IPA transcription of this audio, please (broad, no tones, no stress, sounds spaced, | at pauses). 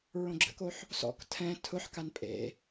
ɹ õ ɡ͡ǁ ə̰ k o ħ | s ɔ̰ k tʰ ɛ̃ tʰ ʊ ħ k a n pʼ ḛ